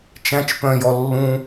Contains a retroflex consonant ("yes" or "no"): no